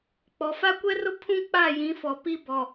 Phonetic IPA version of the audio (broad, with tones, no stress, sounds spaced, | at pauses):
k͡p ɔ˨ f a˦ kʷ ɛ˦ r ʊ˦ pʰ ũ˦ k͡p a˦˨ j ĩ˨˦ f ɔ˨ p i˦ b ɔ˨